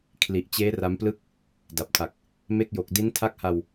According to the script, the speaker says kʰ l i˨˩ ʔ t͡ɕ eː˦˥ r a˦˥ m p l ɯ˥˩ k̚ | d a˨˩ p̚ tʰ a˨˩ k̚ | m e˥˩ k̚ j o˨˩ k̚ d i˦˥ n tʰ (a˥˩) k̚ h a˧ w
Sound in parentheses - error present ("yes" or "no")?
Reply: no